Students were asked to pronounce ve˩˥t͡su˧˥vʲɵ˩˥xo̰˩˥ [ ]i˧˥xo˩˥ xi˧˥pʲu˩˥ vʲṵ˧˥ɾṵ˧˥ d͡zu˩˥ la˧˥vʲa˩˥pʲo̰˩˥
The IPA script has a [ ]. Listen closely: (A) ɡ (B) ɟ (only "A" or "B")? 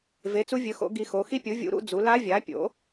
A